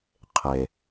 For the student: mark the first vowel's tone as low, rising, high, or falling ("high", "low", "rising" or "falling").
low